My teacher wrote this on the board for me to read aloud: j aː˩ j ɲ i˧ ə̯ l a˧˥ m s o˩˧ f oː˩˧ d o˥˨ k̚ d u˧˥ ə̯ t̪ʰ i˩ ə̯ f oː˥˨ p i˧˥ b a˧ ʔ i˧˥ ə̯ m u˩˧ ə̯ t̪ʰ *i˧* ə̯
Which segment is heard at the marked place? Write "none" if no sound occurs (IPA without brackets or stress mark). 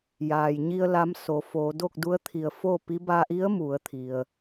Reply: i˩